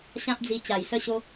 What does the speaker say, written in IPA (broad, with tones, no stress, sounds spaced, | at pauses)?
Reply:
ɕ ã˦ p̚ d͡z i˧ t͡ɕ a˨˩ j s ə˦ ɕ o˦